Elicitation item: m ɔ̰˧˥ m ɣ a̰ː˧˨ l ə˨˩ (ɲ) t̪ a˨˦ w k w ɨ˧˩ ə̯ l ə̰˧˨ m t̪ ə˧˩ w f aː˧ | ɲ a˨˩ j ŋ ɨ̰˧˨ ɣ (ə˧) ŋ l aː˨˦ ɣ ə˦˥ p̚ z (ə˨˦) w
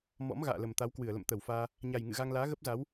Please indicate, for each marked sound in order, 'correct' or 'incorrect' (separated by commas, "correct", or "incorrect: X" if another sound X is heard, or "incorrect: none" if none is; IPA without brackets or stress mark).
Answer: incorrect: m, incorrect: a˧, incorrect: a˨˦